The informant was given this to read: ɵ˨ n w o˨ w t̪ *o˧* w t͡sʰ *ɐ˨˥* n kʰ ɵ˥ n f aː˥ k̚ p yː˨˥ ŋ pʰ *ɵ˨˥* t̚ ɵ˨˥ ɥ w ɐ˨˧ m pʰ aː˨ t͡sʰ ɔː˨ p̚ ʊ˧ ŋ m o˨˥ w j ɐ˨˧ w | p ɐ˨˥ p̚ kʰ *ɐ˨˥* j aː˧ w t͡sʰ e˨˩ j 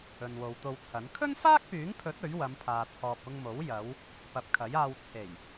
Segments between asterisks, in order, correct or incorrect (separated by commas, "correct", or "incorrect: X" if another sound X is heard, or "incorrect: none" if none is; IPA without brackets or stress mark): correct, correct, correct, correct